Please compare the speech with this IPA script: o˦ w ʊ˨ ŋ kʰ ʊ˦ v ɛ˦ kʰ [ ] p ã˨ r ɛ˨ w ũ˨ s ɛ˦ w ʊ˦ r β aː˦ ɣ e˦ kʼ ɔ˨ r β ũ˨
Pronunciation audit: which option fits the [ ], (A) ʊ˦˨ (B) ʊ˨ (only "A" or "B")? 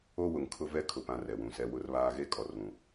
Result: B